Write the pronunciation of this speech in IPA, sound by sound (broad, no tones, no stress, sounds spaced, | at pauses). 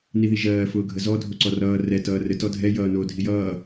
n i ð i ʒ ɜː f ʊː ɡʱ ə z ɔ dʱ o ǀ ɔ r ʌː r ɛ t ʌː r ɘ t ɔ dʱ ɛ j ʌː n o dʱ i j ʌː